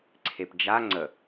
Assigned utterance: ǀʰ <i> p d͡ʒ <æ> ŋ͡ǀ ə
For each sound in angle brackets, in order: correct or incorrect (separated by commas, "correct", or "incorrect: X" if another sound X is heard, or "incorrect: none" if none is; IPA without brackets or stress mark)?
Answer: incorrect: e, incorrect: a